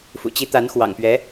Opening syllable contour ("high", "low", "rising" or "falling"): low